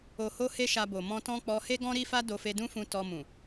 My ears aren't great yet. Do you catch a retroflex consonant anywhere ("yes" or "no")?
no